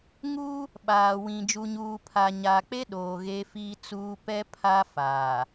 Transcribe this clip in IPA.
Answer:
ŋ uː˦ | ɓ aː˨ w ĩ˨ d͡ʒ u˨ ɲ uː˨ pʰ a˨ ɲ aː˨ k͡p e˦ ɗ oː˨ ɣ eː˦ f iː˦ t͡s uː˦ p ɛ˦ pʰ a˦ f aː˨

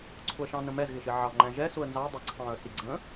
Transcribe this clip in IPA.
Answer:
ǀʰ ʊ ə̯ ʃ ɑ̃ n ə̃ m ɛ z ɣ ɪ ʃ ɪ ʕ ɑ ŋ͡ǃ æ̃ ʒ ɛ s ʊ ə̯ n z ɑ ə̯ dˤ ɛ ǀʰ ɑ̃ː ə̯ s i ɡ͡ǀ ə̃ː

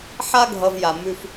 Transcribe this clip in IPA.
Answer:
ħ a˥ ɡʱ ʌ˨ v j a˩ m ʉ˨ f

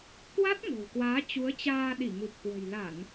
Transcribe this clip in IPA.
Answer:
k w a˦˥ t̚ ŋ o̤˨˩ w k w aː˨˦ t͡ɕ u˨˦ ə̯ t͡ɕ aː˧ ɗ i˧˩ ŋ u˨˩ p̚ k w ə̤˨˩ j l a˧˩˨ n

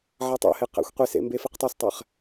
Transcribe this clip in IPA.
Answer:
ʕ a tˤ ɛ̰ h e q ɛ̰ xʷ qʷ i s ḛ m b e f i q tˤ ɛ s tˤ ɛ χ

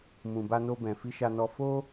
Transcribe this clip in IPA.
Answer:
m ũ˨ b a˧ n o˧ b ɛ̃˨ f i˧ ʃ a˧ n ɔ˧ f o˦

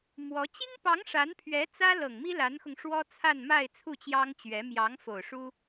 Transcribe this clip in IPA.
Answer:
m w ɔ˧˥ t͡ɕ i˥ ŋ p ɑ˧˥ ŋ ʂ a˧˥ n pʰ ɥ ɛ˧˥ t͡s ä˥ l ɤ˨˩ ŋ m i˥ l a˧˥ n x ʊ˧ ŋ ʂ w ɔ˥ t͡sʰ a˥˧ n m a˥˧ ɪ̯ t͡sʰ u˥˩ t͡ɕ j ɑ˥ ŋ t͡ɕ ɥ ɛ˧˥ m j ɑ˧˥ ŋ f o˨˩ ʊ̯ ʂ u˥

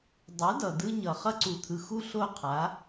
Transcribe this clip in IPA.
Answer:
dˤ u˨˦ d ʌ˨ d ɯ˦ ɲ ʌ˨ χ ʌ˦ ǀ u˨ t̪ʰ ɯ˨ x u˦ ɬ o˦˨ qʰ a˨˦

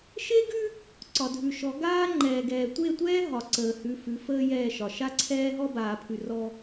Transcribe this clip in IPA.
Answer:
ʃ e˦ ɡ ʉ˦ | ǀ ɒ˨ dʱ ʉ˨ ʃ ɔ˨˦ ɡ aː˦ ŋ͡ǃ ɛː˨ ɡ ɛː˨ tʷ e˦˨ tʷ ɛː˦ ɦ ɒ˨ ǀ əː˨ h ʉ˨˦ f ʉ˨˦ f əː˦ j ɛː˦˨ ʃ ɒ˨ ʃ a˦ ǀʰ ɛː˦ ɦ ɔ˦ b aː˨ pʰ ʉ˨ r ɔ˦

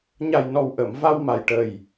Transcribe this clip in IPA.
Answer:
ɲ a˨˩ j n ɔ˨˩ w ʔ ə˨˩˨ m v a˧ w m a˨˩ j ʈ ə˨˩ j

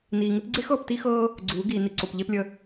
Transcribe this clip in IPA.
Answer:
n iː˨ ŋ ɪ˦ p ɡ͡ǀ e˦ x ɤː˦˨ p t i˦ x ɤː˦ | ɡ͡ǀ uː˨˦ ɡ iː˨ n i˨ ǀ o˨ p ʎ e˦ p lʲ ə˦

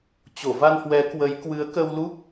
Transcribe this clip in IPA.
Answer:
t͡ɕ o˧˩ v a˧ n h w ɛ˨˦ k w ə˨˦ j k w ɨ˨˦ ə̯ k ə˧ w l u˦˥ k̚

